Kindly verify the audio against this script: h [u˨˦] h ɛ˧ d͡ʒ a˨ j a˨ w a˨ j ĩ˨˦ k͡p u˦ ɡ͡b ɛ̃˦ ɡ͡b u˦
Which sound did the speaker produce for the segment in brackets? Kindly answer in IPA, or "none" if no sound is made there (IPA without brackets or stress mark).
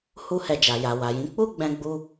u˦